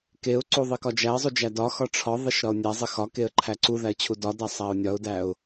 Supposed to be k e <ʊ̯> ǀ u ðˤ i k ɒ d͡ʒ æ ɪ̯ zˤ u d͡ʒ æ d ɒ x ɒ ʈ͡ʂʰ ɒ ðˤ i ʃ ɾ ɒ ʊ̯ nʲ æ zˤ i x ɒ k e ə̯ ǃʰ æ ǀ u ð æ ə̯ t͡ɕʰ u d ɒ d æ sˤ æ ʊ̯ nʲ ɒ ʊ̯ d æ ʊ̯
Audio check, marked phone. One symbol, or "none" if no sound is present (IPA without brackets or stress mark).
ʊ̯